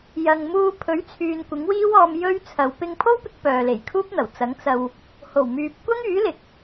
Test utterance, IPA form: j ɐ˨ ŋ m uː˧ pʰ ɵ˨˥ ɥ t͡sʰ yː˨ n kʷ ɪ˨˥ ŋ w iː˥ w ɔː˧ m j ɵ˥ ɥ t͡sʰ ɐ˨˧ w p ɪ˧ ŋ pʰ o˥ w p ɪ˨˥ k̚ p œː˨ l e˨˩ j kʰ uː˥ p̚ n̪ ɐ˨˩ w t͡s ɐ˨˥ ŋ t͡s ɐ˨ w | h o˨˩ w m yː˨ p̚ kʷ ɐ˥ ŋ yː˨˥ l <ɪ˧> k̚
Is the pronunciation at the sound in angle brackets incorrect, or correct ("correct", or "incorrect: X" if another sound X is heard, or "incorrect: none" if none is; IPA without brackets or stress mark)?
incorrect: ɪ˨˥